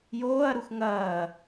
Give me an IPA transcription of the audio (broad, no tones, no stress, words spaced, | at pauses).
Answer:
joːɐ̯ɾux ŋɐː